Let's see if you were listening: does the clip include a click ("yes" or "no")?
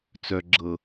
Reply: yes